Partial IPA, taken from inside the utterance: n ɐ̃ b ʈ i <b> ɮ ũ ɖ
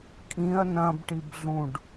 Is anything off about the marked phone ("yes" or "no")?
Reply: no